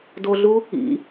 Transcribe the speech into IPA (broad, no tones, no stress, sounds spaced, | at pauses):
d o ɮ u | ḭ